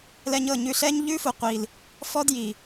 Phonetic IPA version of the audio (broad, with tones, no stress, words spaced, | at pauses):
lɛ˧ɲɤ˦˨ɲʉ˧ɬɛ˦ɲ ʎʉ˦fu˨qʷi˨l | fɔ˦dji˨